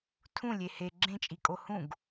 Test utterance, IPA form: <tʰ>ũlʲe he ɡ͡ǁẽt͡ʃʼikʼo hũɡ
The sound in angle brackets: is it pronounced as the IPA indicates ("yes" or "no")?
yes